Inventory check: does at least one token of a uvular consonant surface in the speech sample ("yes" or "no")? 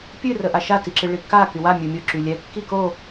no